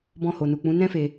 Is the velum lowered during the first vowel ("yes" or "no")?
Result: yes